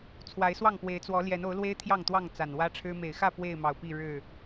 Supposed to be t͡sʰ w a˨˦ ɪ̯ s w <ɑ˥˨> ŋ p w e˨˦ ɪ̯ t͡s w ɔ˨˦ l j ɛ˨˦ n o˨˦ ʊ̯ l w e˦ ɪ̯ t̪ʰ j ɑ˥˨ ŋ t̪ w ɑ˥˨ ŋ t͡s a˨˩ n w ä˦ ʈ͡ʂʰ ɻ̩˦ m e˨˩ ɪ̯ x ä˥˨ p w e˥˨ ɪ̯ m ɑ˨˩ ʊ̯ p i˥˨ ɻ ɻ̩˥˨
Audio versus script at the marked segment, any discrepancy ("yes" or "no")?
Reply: no